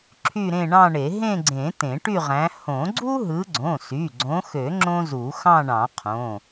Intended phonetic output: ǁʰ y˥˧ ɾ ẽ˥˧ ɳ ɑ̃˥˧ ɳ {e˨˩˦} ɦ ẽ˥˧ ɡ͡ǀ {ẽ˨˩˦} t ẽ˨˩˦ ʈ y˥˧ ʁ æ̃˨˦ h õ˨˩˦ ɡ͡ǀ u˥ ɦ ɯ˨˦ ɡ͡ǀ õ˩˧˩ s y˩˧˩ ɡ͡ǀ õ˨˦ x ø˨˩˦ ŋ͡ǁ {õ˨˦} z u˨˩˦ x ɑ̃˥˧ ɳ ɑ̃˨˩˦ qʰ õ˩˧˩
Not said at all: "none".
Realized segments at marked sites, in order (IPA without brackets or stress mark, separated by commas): e˨˩˦, ẽ˨˩˦, õ˥